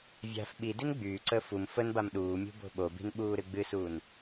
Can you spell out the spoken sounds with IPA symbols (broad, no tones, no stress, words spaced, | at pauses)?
vʲa̤f ɓidin ɡ͡byːǀəː fum fənbam ɗuːmʲṳ bo̤ɓobi̤n ɓuːɾɨɡ͡bɨsuːn